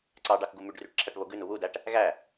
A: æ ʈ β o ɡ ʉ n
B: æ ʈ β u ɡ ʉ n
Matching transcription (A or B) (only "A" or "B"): A